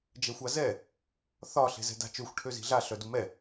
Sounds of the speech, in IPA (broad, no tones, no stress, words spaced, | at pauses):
d͡ʒɛxʷazɛ | θɒ ɬe̤zɛ̤da̤t͡ʃøxʷ ʈʰøzi̤ɮa ɬœdumɛ